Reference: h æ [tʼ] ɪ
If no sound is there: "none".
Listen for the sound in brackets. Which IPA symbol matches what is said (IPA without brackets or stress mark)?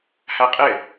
qʼ